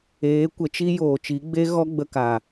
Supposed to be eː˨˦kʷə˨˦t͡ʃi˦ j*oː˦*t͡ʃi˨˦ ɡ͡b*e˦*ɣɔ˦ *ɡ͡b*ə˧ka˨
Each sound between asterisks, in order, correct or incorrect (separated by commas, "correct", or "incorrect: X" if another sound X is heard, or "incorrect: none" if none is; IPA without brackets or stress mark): incorrect: oː˨, correct, correct